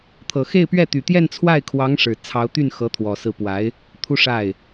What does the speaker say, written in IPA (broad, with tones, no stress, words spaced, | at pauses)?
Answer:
t̪ʰɤ˨˩xe˥˧ɪ̯pɥɛ˥˩ t̪y˨˩t̪jɛ˥˧n t͡sʰwa˥˩ɪ̯kʰwɑ˧˥ŋ ʂɻ̩˨˩ t͡sʰɑ˧˥ʊ̯ t̪y˥˩n xɤ˧˥t̪ʰwɔ˨˩sɹ̩˥˩ pwa˧˥ɪ̯ | t̪ʰu˥ʂa˥˩ɪ̯